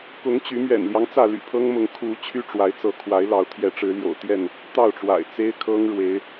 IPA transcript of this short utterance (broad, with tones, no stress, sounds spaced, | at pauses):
k ʊ˨˦ ŋ t͡ɕ y˨˦ m ɥ ɛ̰˨˩ n l j ɑ˦ ŋ t͡s ä˥˨ l y̰˨˩ pʰ ɤ˦ ŋ m ʊ˨˦ ŋ kʰ u˨˦ t͡ɕʰ y˦ ʈ͡ʂ w a˨˦ ɪ̯ t͡s ɤ˨˦ kʰ w a˨˦ ɪ̯ l ɑ˨˦ ʊ̯ t̪ʰ j ɛ˨˦ ʈ͡ʂ ɻ̩˨˦ l j o̰˨˩ ʊ̯ t̪ j ɛ˥˨ n | t̪ ɑ˥˨ ʊ̯ ʈ͡ʂ w a̰˨˩ ɪ̯ t͡s e˦ ɪ̯ kʰ ɤ˦ ŋ ɻ w e˨˦ ɪ̯